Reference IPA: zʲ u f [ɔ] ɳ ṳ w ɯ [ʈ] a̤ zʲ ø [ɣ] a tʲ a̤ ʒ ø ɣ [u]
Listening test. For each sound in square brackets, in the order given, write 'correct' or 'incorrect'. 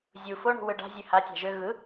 incorrect: o, incorrect: ɖ, incorrect: h, incorrect: ɯ

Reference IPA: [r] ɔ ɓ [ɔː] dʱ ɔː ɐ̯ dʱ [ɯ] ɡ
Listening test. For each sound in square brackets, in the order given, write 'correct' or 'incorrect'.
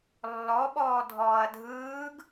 incorrect: lː, correct, incorrect: ɯː

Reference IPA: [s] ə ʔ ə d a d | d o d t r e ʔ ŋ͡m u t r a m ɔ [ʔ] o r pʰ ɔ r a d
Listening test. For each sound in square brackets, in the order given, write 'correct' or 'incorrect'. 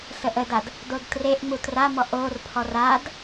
correct, correct

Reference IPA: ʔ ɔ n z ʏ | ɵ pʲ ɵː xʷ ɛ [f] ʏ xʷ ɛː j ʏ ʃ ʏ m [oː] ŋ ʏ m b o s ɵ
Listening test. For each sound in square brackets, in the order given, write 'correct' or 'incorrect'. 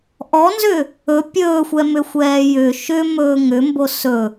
incorrect: m, incorrect: ɵː

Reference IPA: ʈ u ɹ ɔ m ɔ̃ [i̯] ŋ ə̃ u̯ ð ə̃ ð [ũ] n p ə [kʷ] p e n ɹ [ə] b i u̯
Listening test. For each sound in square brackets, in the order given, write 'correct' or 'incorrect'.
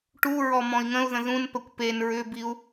correct, correct, correct, incorrect: ʏ

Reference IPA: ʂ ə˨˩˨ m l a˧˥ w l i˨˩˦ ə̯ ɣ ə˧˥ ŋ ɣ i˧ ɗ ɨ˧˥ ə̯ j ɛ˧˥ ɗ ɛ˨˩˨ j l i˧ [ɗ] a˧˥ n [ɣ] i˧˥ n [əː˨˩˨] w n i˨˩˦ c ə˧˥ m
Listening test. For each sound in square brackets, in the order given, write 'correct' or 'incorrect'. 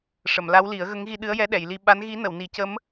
incorrect: ɓ, correct, incorrect: ə˨˩˨

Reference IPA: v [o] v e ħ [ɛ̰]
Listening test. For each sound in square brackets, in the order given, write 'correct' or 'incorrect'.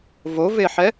correct, incorrect: ɛ

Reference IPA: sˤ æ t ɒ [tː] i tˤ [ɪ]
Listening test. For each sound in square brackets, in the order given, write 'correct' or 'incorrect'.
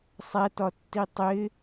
correct, correct

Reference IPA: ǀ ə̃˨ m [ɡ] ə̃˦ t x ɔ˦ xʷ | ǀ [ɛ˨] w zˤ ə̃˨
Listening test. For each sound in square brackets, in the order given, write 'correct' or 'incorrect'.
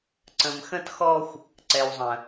incorrect: x, correct

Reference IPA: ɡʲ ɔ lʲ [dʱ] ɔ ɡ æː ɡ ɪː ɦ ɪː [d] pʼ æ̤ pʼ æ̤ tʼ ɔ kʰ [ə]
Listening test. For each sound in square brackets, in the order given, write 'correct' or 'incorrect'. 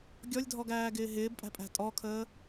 correct, incorrect: b, incorrect: əː

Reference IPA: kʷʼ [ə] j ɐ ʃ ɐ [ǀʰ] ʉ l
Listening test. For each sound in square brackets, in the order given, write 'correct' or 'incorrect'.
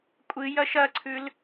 incorrect: ɨ, correct

